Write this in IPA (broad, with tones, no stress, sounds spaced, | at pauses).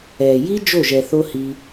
ɛː˨ j i˦ d͡ʒ o˦˨ ʒ ɛ˨ θ o˧ h i˧